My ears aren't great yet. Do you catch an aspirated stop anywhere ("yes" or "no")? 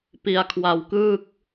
yes